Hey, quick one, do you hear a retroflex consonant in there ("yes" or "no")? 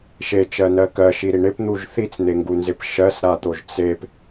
yes